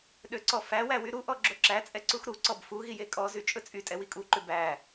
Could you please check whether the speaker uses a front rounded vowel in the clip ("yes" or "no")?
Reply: yes